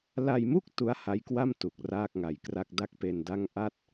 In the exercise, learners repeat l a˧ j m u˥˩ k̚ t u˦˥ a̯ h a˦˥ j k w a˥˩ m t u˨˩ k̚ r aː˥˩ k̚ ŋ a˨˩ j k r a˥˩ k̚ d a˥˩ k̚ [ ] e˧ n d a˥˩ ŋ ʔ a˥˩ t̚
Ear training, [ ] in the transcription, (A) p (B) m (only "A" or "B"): A